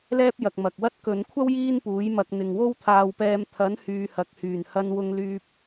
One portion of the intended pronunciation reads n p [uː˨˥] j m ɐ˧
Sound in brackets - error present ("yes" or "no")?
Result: no